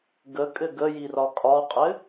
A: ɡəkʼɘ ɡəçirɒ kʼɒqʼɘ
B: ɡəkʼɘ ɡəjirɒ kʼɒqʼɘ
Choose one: B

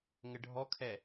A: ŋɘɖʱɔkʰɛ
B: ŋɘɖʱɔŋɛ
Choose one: A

